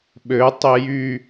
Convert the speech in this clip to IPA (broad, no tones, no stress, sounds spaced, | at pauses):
ɓ ø tˤ i j y